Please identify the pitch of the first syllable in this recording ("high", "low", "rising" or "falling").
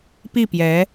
falling